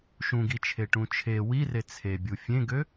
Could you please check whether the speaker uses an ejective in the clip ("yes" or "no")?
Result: no